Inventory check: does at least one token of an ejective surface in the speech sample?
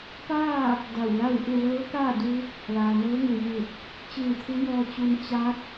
no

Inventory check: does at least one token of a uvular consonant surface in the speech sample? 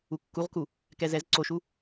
yes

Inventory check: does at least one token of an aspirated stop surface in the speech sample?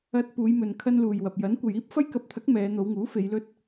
yes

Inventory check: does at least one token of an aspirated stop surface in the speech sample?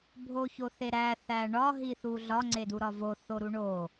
no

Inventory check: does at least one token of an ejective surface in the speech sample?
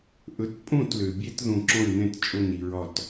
yes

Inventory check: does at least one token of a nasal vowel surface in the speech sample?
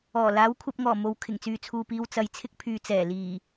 no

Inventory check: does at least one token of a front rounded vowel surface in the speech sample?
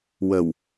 no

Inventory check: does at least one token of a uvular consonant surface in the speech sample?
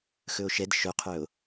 yes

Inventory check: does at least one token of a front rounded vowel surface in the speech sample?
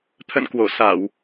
no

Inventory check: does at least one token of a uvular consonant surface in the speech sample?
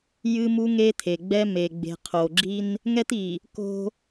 yes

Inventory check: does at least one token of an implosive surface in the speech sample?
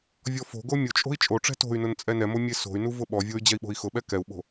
yes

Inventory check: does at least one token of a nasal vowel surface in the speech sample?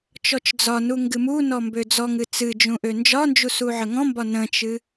yes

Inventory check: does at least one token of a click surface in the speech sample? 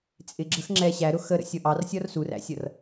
yes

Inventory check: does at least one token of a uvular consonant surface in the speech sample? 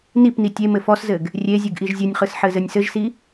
yes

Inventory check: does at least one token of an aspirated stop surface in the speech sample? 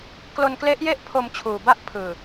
yes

